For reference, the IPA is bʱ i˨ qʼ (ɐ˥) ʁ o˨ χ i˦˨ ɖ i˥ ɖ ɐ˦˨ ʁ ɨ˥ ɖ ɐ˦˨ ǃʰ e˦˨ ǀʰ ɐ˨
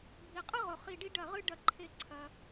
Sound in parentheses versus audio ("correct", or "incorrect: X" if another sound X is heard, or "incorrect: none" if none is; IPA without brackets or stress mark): correct